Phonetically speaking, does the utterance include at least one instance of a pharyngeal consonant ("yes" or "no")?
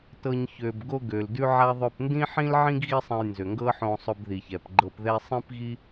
yes